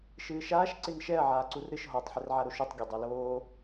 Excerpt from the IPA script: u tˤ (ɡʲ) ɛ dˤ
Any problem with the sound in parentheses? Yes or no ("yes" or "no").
no